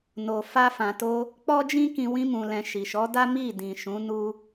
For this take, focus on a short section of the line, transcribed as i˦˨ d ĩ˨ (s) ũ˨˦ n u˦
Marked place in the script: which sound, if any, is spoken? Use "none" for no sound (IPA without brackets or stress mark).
ʃ